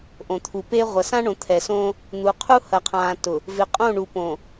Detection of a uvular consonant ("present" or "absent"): present